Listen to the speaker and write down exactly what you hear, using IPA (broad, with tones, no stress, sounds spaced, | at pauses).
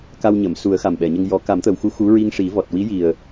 k a˧ w ɲ əː˨˩˨ m s u˨˩˦ ə̯ x a˨˩ m ɓ ɛ˨˩˨ ɲ ə˧ ŋ j ɔ˨˩˦ k a˨˩˦ m t̪ ə˨˩ w x u˧˥ x u˧˥ ɹ i˧ ŋ ʂ i˨˩˦ v ɔ˨˩ t̚ w i˧˥ j i˨˩ ə̯